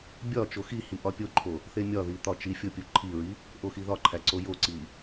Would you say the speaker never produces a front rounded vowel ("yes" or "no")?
yes